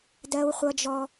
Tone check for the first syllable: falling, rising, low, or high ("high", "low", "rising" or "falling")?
high